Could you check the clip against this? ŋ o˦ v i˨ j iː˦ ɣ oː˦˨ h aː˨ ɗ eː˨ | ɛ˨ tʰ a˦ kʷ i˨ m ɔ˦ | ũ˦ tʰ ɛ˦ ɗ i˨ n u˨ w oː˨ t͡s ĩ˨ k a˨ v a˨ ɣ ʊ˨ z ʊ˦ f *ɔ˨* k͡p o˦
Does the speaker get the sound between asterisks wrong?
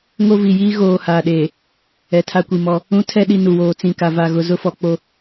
no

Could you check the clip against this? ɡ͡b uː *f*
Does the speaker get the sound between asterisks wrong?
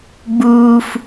no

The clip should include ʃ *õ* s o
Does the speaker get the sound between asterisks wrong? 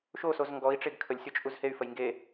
yes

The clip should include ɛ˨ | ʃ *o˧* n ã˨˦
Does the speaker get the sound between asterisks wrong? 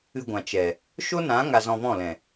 yes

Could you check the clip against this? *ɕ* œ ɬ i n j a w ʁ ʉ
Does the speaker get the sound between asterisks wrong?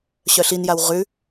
no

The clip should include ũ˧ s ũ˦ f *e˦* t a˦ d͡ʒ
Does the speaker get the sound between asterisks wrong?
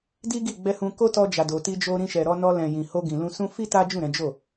yes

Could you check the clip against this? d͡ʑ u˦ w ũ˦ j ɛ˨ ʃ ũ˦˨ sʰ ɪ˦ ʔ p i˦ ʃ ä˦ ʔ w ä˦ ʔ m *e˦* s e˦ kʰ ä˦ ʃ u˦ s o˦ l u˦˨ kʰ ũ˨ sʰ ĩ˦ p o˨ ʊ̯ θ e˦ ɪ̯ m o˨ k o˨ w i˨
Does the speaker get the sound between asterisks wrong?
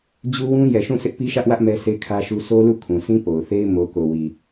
yes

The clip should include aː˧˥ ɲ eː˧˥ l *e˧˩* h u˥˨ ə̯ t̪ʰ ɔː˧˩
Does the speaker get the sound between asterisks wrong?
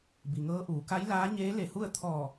no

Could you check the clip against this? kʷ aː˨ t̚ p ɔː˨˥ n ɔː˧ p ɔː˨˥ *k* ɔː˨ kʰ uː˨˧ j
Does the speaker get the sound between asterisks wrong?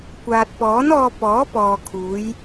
yes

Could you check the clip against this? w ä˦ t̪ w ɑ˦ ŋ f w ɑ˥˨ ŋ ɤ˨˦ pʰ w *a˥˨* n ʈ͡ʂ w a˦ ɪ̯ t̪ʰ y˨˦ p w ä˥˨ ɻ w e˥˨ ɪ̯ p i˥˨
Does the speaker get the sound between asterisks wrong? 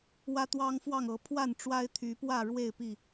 no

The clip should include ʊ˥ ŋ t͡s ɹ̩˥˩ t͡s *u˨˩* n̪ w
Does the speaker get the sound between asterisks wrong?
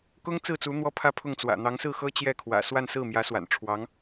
yes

